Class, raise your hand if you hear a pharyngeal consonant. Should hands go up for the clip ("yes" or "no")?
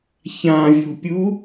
no